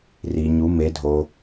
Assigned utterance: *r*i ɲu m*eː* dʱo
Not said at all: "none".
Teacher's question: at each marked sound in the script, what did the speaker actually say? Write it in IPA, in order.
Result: r, e

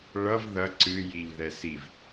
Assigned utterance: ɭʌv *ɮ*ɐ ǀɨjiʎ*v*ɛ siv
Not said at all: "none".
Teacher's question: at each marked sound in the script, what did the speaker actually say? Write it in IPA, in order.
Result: ð, ð

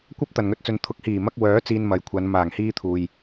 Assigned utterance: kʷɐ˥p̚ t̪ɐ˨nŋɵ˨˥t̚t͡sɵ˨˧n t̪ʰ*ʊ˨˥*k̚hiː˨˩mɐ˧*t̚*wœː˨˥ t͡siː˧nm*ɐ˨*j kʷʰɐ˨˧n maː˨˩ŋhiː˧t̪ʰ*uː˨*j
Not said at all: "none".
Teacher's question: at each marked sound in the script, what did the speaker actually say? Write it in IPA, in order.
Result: ʊ˨˥, k̚, ɐ˨, uː˨

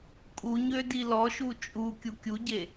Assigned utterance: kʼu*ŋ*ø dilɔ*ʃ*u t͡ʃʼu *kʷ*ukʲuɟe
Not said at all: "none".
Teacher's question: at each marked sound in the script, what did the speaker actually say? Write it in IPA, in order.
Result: ɲ, ʃ, kʲ

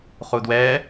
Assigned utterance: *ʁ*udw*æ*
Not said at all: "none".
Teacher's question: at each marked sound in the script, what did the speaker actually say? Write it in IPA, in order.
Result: χ, ɛ

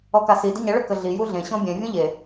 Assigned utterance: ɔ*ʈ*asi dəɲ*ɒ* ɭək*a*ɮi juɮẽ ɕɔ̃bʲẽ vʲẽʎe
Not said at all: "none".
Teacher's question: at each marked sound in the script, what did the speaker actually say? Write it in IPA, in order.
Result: k, ʌ, ə

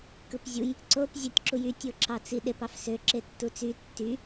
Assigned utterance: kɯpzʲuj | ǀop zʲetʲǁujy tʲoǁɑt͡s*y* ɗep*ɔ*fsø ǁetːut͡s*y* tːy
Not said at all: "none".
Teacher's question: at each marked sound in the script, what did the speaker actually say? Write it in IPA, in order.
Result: i, ɑ, y

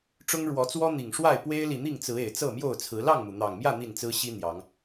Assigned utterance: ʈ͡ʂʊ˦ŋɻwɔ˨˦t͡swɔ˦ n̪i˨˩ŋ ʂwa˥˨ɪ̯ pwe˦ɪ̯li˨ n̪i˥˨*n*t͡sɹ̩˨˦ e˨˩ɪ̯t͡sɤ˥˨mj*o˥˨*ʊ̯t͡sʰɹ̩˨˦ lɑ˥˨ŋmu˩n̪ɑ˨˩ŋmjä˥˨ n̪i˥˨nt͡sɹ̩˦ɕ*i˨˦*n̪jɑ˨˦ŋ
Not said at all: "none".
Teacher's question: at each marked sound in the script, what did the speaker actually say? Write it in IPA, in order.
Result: ŋ, o˥˨, i˦

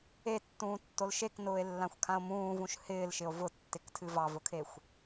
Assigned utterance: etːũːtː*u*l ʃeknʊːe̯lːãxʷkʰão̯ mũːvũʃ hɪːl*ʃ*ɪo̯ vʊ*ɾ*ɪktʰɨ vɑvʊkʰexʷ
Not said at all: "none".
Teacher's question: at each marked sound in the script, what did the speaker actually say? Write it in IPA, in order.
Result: o, ʃ, tː

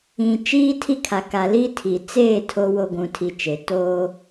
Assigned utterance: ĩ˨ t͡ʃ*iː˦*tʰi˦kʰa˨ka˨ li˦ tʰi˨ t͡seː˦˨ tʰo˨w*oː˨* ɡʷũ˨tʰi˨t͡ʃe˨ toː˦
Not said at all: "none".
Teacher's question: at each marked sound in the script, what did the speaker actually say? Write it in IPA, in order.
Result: iː˦, o˨

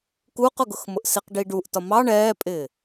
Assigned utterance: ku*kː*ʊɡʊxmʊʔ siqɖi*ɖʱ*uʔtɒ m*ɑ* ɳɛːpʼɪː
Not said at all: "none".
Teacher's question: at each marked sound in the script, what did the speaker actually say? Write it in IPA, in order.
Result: q, ɖ, ɑ

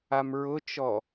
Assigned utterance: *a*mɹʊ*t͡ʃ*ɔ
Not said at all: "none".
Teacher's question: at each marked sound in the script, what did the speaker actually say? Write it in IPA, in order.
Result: a, t͡ʃ

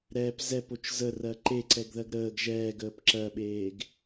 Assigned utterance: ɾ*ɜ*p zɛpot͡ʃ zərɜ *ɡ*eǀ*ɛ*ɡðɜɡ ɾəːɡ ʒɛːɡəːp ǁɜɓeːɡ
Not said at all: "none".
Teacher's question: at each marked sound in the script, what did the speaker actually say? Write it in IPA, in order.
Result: ɛ, ǃ, ɛ

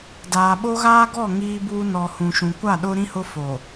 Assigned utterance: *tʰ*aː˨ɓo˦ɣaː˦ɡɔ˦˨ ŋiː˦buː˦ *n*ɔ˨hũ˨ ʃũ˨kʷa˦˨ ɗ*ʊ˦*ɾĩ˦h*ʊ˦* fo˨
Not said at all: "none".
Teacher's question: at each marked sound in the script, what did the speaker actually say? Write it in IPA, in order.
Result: d, n, ʊ˦, ʊ˦

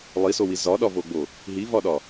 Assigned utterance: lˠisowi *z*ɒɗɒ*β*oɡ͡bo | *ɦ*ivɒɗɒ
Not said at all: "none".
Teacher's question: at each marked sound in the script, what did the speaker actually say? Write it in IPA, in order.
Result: z, v, ɦ

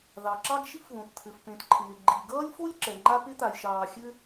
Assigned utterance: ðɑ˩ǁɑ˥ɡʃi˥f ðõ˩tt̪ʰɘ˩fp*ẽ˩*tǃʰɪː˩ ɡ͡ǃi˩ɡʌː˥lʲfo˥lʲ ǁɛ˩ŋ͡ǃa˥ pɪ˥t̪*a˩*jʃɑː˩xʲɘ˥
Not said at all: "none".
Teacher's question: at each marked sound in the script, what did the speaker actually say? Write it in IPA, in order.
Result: ẽ˩, a˩

